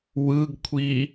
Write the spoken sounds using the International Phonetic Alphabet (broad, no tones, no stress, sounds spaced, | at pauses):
w ɯ ɡ kʷʰ i